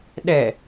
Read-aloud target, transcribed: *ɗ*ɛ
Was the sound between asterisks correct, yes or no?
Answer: yes